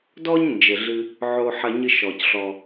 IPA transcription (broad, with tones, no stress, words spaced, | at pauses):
dɔ˦ɲ nd͡ʒɘ˩ ɮɨ˨ | ʕo˨ħɐ˨ɲɨ˨ ʃɔ˩cɬɔ˩